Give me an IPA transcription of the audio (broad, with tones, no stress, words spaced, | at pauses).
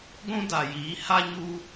ɡʷũ˦da˨jiː˨˦ ha˦ɲu˦